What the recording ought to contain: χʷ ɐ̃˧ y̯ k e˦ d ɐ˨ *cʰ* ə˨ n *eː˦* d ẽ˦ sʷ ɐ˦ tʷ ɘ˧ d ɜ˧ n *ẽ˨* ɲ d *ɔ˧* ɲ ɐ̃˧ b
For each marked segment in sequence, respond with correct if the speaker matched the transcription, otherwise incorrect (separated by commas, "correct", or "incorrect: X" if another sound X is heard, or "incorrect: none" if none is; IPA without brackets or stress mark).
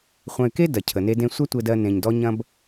correct, incorrect: e˦, correct, correct